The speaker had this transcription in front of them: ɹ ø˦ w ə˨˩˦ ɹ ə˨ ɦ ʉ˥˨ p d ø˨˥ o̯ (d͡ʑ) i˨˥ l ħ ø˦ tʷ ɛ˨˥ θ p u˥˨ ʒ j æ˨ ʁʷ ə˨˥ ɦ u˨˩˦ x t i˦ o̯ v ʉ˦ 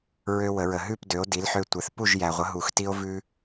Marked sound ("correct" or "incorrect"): incorrect